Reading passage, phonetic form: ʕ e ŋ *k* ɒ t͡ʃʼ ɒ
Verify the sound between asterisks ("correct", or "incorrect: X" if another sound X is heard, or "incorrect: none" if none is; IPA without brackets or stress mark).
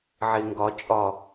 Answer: incorrect: ɡ